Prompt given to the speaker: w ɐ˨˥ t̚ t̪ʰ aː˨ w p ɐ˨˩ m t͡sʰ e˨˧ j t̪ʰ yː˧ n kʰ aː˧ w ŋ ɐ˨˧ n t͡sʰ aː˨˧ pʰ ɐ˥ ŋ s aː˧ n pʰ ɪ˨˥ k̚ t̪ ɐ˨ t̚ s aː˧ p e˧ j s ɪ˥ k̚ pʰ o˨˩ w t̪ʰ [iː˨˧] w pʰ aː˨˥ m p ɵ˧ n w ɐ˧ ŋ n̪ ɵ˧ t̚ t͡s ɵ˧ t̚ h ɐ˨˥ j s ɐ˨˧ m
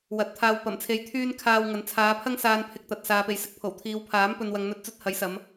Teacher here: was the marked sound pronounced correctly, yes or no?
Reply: yes